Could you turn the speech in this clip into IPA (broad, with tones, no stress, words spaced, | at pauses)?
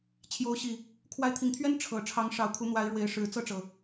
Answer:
t͡ɕʰjo˨˦ʊ̯ɕi˨˩ | kʰwa˨˦ɪ̯t̪ʰi˨˩ŋt̪ʰɥɛ˦n ʈ͡ʂʰɤ˨˩ ʈ͡ʂʰɑ˨˦ŋʂɑ˨˩ʊ̯ kʰu˨˦n̪wa˨˦ɪ̯ɻwe˨˦ɪ̯ʂɻ̩˨˩ t͡sɤ˥˨ʈ͡ʂɤ˩